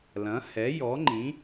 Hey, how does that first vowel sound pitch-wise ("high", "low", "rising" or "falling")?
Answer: rising